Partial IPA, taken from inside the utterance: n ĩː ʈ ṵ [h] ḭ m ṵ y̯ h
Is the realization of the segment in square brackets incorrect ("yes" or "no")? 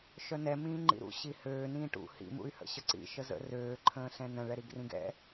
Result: no